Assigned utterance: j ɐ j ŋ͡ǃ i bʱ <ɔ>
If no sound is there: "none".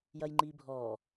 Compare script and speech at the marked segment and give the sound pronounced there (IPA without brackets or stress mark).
ɔ